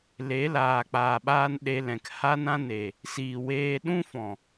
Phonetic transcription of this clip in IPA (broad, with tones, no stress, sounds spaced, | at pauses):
l e˨˦ l aː˨ k͡p aː˨ ɓ aː˧ n ɗ e˧ l ɛ̃˨ k h a˦ n ã˦ n e˨ | s iː˨ w eː˧ ɗ ũ˦ f ɔ̃˨